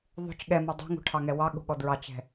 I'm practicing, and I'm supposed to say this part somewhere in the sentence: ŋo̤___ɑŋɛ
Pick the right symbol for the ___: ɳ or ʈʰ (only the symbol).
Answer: ʈʰ